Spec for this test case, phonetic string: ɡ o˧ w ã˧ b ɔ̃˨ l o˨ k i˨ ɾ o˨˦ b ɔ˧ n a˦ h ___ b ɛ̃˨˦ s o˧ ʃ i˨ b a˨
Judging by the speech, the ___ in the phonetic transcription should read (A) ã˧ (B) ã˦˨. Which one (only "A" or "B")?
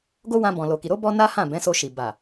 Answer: B